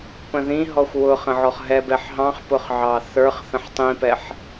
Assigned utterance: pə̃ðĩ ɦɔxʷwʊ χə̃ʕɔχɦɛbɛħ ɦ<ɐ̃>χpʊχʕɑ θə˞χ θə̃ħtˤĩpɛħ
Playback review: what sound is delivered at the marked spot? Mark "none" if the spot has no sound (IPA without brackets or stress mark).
ɑ̃